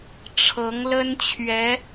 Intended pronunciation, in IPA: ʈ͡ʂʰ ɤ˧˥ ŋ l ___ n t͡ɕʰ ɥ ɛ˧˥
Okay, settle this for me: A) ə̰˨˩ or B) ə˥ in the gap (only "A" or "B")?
B